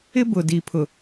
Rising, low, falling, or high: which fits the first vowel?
high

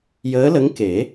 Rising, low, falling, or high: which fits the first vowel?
rising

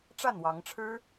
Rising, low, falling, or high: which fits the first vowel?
falling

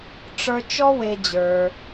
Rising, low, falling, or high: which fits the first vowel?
high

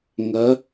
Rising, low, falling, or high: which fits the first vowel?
rising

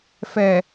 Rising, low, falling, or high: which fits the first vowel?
low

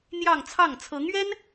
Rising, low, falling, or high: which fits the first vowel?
falling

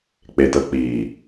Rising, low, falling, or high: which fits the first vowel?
low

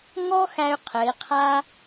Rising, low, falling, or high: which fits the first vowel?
high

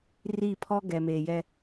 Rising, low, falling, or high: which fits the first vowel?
falling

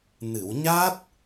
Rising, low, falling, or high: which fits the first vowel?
low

